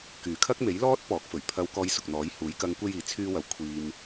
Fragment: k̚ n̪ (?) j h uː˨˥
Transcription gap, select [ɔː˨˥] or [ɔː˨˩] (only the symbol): ɔː˨˥